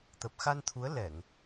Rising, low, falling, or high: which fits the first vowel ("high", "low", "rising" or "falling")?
low